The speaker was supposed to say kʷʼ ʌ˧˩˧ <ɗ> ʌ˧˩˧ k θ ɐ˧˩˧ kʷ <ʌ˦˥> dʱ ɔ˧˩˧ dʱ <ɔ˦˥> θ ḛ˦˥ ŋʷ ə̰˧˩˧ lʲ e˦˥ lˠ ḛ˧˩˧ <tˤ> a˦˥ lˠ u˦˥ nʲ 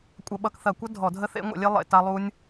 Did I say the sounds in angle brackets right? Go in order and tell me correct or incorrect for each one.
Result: incorrect: ɓ, correct, incorrect: ə˦˥, incorrect: t

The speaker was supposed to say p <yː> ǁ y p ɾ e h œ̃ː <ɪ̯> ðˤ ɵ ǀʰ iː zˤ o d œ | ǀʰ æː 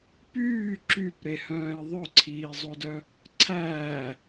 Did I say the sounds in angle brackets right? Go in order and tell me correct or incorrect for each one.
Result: correct, correct

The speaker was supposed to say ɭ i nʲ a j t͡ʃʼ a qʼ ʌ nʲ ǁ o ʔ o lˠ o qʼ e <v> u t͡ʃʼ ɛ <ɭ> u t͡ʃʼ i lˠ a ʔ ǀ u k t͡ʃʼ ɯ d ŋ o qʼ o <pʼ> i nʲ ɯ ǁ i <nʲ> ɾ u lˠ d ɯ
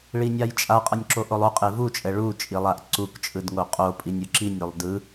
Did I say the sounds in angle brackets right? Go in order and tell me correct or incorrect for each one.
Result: correct, correct, correct, correct

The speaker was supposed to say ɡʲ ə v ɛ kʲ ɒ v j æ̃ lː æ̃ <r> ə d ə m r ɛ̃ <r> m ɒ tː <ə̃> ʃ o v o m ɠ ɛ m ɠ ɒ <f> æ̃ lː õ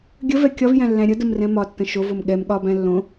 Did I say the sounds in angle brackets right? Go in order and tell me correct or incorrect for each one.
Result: incorrect: ɾʲ, incorrect: none, correct, incorrect: b

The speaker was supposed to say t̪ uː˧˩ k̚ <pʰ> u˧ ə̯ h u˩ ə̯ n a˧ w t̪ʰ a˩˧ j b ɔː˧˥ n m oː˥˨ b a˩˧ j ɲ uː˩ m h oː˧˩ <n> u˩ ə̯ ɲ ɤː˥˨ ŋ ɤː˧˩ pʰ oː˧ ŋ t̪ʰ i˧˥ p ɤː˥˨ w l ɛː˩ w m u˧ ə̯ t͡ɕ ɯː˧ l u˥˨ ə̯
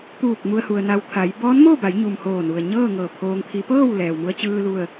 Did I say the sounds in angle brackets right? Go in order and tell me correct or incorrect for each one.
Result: incorrect: m, correct

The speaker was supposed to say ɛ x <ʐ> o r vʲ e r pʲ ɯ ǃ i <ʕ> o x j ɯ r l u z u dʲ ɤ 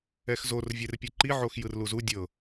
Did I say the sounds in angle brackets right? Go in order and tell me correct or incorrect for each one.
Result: incorrect: z, correct

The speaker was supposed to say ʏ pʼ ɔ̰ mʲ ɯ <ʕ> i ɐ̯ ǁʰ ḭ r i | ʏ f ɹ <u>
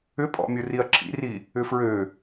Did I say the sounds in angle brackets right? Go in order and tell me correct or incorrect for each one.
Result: incorrect: r, incorrect: ø

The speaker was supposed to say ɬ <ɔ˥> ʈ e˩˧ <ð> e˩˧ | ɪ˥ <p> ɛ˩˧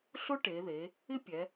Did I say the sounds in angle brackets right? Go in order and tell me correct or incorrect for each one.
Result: incorrect: ʊ˥, correct, incorrect: pʲ

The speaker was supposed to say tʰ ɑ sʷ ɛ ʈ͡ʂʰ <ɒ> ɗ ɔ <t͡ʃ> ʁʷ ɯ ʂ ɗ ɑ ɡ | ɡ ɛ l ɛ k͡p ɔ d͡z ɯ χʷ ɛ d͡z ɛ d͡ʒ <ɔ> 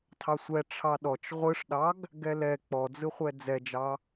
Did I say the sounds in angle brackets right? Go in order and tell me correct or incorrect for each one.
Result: incorrect: ɑ, correct, incorrect: ɑ

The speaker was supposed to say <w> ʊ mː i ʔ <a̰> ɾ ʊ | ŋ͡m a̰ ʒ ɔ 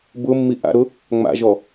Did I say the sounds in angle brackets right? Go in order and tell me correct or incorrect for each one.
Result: incorrect: b, correct

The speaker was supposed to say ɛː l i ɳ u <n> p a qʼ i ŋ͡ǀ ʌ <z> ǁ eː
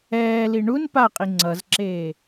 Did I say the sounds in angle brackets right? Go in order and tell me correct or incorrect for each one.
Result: correct, correct

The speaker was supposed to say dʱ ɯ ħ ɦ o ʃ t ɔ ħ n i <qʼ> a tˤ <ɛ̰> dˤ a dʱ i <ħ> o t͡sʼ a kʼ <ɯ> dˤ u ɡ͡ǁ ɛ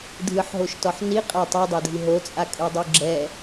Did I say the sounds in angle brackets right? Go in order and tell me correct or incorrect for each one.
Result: correct, incorrect: ɛ, incorrect: ɦ, correct

